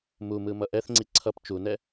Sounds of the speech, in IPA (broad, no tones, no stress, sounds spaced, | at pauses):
m u m ɯ m ʌ ʔ ɛ θ ŋ͡ǀ i ǀʰ ʌ p t͡ʃ u n ɛ